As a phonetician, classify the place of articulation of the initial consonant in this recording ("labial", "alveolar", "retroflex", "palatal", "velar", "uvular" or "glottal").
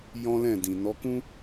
palatal